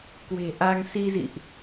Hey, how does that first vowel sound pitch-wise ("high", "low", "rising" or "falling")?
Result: low